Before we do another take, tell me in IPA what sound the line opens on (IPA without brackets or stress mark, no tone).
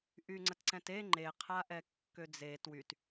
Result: ʔ